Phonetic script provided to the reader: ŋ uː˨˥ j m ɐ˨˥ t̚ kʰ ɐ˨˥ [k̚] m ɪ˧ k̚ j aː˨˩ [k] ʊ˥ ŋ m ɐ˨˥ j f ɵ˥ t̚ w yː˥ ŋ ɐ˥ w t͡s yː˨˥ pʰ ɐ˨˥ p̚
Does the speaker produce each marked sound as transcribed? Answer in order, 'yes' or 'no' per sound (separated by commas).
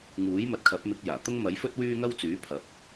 no, no